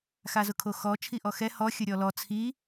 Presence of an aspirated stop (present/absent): present